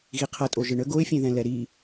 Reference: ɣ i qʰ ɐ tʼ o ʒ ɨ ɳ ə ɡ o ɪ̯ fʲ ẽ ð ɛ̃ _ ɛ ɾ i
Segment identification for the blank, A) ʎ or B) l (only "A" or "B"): B